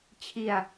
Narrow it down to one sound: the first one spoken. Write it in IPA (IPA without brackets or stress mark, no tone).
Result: t͡ɕʰ